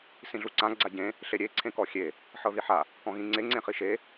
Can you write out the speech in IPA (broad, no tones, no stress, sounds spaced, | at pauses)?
s ĩ ɮ u ǀ ã ɡ͡ǀ a ɟ ẽ | ɬ e ɾʲ e ǀʰ ẽ k ɔ xʲ e | ħ ɤ ð i ħ a | k ɔ̃ ɣ ĩ ŋ͡ǀ e ŋ͡ǀ ẽ χ i ʃ e